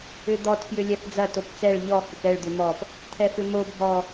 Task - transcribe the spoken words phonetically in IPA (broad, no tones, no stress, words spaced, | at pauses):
ʏd̪ɔt fjʏlʲɛfd͡zɐ topt͡sɛɭ ʎɔ hʏkɛɭ d̪ʏmɔp | t̪ʰɛfʏmo bʱɔ